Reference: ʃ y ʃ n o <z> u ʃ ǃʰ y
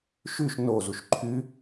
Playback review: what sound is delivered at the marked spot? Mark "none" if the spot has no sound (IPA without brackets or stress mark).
z